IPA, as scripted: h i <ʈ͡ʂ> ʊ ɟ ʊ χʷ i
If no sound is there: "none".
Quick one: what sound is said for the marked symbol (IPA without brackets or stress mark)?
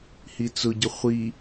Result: t͡s